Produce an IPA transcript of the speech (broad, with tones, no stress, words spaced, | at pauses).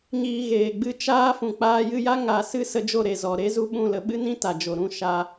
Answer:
ɲiː˨ ɣeː˨ɡ͡bɨ˧ t͡ʃaː˧ fũ˨k͡paː˧jɨ˧ja˦ ŋa˨ sɨ˦sə˧d͡ʒo˦˨ ɾe˨zɔ˨ ɾe˦zu˦ ɓũ˦˨lə˧ɓɨ˦nĩ˦ ta˨d͡ʒo˨ɾũ˦˨ ʃa˧